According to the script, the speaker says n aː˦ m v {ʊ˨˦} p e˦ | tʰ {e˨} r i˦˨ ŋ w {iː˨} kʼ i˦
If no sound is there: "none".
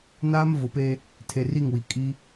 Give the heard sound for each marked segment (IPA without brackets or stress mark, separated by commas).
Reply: ʊ˨˦, e˨, i˨